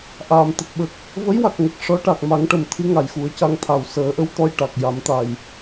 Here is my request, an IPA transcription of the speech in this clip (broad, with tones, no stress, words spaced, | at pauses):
ʔaː˨˩˨mt̪ə˨˩k̚ ɓə˨˩k̚ | və˧˥jwa˨˩k̚ŋə˨˩k̚ ʂɔ˧˥ ʈa˨˩k̚ ma˨˩˦ŋʈə˨˩mt̪ʰɨ˧˥ ŋa˨˩jxu˨˩˦ə̯ca˧ŋt̪ʰa˨˩w səː˨˩˦ʔə˧˥w t̪ɔ˧jʈa˨˩k̚ja˨˩˦mt̪a˨˩j